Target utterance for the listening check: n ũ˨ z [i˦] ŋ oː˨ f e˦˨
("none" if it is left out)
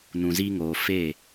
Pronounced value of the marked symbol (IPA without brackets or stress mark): i˦